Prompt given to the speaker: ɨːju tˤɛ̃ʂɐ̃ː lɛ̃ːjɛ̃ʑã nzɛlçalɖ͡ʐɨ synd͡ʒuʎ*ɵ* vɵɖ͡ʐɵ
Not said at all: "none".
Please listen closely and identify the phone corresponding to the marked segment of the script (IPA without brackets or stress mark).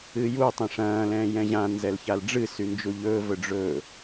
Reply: ɵː